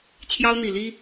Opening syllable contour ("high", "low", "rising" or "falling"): high